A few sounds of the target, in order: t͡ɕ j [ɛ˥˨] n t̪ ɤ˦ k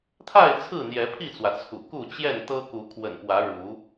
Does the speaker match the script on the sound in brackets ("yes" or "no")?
yes